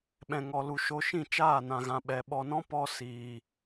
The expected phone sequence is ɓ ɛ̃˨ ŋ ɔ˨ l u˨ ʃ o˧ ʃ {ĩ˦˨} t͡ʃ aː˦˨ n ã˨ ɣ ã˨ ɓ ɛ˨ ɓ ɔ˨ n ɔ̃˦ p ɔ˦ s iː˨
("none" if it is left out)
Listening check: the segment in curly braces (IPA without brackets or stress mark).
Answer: ĩ˦˨